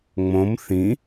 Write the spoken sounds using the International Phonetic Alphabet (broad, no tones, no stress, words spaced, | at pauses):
ŋ͡mõm θĩ